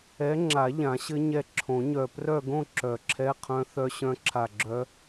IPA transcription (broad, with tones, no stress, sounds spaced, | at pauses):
ɛ˨˥ ŋ͡ǁ a˨˩˦ ʎ ã˨˩˦ ɕ ɘ˦˥ ɲ ɛ˧˩ ǁʰ õ˨˩˦ ɲ œ˧˩ p r œ˥˧ ɡ õ˥˧ ǁ œ˨˩˦ ǁʰ ɛ˧˥˧ qʰ œ̃˦˥ θ œ˦˥ ɕ œ̃˦˥ ǁʰ a˧˩ ɡ͡ǁ œ˦˥